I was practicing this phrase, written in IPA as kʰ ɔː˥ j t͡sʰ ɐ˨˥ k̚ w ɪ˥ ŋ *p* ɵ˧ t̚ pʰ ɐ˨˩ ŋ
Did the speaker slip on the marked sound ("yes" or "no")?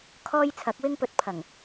no